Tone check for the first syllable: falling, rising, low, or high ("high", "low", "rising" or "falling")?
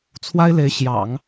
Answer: high